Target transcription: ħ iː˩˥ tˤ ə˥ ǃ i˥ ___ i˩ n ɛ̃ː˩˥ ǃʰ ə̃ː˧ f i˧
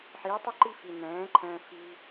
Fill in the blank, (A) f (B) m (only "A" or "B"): A